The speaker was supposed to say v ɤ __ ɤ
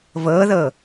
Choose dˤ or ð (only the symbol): ð